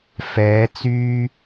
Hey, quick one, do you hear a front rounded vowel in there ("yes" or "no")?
yes